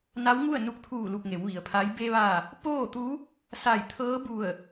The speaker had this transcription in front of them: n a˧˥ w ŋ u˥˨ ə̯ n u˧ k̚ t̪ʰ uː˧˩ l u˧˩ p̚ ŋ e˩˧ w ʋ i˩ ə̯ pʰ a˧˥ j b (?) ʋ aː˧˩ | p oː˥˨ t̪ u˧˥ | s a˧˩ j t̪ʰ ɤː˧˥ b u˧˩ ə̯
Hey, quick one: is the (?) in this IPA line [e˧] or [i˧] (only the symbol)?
e˧